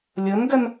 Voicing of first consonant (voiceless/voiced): voiced